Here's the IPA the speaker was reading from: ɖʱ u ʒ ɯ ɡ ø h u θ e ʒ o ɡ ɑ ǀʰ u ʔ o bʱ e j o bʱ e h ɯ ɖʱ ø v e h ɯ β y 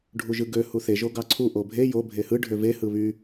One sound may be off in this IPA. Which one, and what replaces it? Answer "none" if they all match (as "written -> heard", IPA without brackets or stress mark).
none